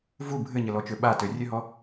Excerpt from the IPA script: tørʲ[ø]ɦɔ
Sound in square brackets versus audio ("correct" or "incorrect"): correct